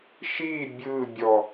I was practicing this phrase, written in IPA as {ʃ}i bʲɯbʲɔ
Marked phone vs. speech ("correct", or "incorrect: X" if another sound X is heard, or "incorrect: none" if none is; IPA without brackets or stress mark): correct